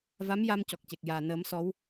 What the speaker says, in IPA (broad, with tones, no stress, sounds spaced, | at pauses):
v a˧˥ m j a˧ m c ɔ˨˩ k̚ c e˨˩ k̚ j aː˨˩ n əː˨˩˦ m s ɔ˧˥ w